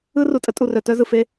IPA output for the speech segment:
ɯ˦ r u˨ tʼ ə˦ tʼ u˨ r œ˨ t œ˦ z ɯ˨ f e˦

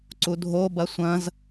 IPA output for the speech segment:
ǀ u dʱ o b ɐ sʷ ɐ̃ z

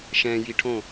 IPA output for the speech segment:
ʃ ɛ̃ j i ʈʰ õ

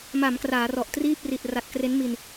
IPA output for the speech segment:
m a˩˦ m k r aː˩˦ r ɔ˨˩ ʔ t r iː˥˩ p̚ r i˨˩ t̚ r a˨˩ t̚ k r e˦˥ n m i˧ n

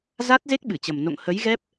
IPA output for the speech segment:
z a˦˥ t̚ z e˦˥ k̚ ɓ ɨ˧˩ t͡ɕ ə˨˩ m n o̰˧˨ ŋ h ə˨˦ j ɣ ɛ˦˥ p̚

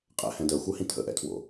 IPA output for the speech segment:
qʼ ɛ̰ h ɛ̃ d ɜ xʷ ɜ h ĩ tʰ ə̰ ʔ ɛ̰ tʰ w o̰

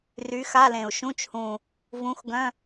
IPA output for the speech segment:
r y˨˥ x a˧˥˧ l ẽ˨˩ u̯ ʃ ũ˧˥˧ t͡ʃ h ũ˨˩ | v ũ˨˥ x ɡ œ̃˧˥˧

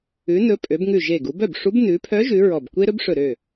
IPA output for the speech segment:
ʉ˩˧ n ɵ˩˧ pʼ ø˩˧ b ŋ ʉ˧˩ ʒ e˧˩ ɡ u˩˧ b œ˥˩ b ʂ u˧˥ b n ʉ˩˧ pʰ œ˧˥ ʒ ʉ˩˧ ɹ ɔ˧˩ b kʷ e˥ ɾ ɵ˥ b ʂ ɵ˧˩ ɾ ø˥˩

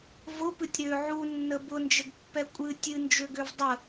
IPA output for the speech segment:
v ʊ p ɨ tʲ ɾ ø ʕ u nː ə b ʊ n d͡ʒ ə ɡ pː ɛ kʷʼ ɨ tʲ ɨ n d͡ʒ ø ɡ ø v dˤ ə

